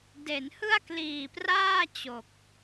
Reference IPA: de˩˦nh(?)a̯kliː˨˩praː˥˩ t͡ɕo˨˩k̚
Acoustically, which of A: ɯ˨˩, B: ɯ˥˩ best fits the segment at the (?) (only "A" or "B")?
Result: B